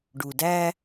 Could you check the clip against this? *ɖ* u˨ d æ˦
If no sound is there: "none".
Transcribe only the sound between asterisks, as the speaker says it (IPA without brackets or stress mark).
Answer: ɖ